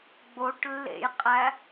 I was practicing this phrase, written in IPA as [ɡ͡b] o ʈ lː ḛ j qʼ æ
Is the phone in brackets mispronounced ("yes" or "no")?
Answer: no